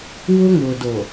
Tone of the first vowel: high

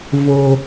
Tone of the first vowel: low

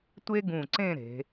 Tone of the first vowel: high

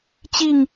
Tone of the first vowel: falling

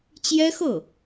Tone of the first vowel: high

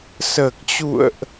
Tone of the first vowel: low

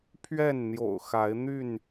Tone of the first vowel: falling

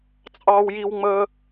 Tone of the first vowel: high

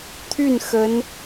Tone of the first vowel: falling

